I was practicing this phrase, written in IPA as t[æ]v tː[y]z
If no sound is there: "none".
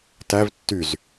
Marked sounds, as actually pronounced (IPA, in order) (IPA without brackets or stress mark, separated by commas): æ, y